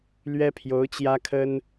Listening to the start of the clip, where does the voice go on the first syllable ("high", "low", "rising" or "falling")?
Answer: high